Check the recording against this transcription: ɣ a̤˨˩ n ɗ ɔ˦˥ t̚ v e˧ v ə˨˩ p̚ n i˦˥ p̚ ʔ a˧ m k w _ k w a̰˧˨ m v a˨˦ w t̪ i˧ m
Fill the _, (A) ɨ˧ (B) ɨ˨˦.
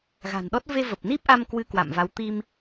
A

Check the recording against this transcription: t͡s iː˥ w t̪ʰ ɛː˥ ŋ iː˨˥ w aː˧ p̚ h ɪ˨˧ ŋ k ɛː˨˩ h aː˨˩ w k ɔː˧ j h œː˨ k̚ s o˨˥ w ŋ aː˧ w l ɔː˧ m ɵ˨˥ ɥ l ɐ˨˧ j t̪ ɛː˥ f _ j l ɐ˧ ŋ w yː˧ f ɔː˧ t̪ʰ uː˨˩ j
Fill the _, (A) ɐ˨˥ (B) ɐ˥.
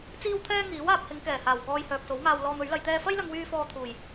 B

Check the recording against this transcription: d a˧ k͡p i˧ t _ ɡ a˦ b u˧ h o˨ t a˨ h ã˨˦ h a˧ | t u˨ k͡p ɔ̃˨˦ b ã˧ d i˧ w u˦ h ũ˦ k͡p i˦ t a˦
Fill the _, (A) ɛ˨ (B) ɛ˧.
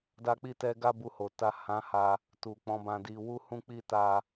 B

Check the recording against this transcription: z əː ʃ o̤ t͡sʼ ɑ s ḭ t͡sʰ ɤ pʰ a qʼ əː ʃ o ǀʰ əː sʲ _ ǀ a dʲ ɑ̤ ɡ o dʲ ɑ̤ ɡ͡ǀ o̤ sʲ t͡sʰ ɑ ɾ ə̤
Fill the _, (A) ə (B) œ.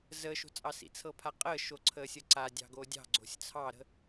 A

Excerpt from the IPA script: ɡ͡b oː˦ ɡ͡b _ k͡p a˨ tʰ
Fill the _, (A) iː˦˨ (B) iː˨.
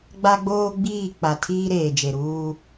A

